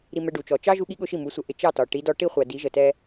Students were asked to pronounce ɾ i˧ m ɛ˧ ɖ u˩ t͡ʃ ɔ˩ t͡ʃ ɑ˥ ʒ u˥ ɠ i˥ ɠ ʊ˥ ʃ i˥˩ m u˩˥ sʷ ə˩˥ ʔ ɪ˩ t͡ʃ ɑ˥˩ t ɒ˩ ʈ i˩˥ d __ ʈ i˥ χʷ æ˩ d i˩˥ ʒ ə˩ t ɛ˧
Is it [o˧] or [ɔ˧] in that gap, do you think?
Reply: ɔ˧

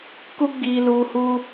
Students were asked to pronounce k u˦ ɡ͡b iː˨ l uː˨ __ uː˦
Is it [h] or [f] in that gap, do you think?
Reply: h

